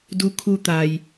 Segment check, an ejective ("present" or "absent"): absent